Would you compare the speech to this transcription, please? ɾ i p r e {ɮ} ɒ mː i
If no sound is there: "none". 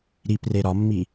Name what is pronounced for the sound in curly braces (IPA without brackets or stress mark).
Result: ɾ